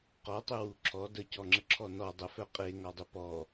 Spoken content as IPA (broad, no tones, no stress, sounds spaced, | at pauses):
q ɔ tˤ ʏ w u ǁʰ ɔ d ə c ɔ ŋ͡ǁ ə ǁʰ ɔ n ɔ dˤ ə f œ qʼ e ŋ ɒ dˤ ʏ p ɔ